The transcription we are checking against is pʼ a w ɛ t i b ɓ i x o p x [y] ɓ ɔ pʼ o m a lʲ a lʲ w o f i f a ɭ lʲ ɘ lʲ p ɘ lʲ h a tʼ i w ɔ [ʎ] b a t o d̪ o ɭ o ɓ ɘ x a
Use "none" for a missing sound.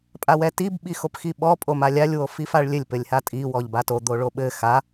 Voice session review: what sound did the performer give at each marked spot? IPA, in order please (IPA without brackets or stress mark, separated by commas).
i, ʎ